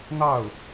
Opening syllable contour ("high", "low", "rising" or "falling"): falling